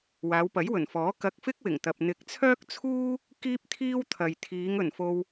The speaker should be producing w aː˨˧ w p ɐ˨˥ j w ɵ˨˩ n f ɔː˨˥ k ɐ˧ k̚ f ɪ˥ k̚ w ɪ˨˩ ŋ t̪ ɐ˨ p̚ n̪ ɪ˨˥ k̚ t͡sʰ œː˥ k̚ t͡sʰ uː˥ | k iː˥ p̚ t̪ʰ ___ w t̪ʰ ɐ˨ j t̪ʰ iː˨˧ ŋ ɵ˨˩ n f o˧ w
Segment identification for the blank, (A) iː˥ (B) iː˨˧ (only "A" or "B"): A